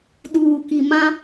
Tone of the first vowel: low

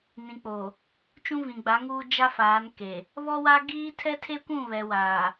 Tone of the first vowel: low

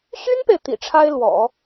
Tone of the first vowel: high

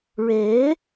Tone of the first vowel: rising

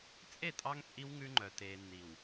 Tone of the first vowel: falling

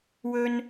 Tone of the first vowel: high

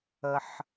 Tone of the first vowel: low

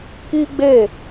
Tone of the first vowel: high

